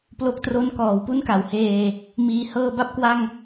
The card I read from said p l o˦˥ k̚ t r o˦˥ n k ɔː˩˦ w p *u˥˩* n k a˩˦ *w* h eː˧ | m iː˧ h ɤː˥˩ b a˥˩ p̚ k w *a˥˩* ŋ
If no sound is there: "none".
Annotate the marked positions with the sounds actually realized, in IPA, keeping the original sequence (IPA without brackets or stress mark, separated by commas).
u˥˩, w, a˥˩